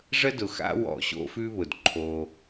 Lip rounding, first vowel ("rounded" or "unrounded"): unrounded